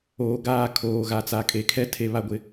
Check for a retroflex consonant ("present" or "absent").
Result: absent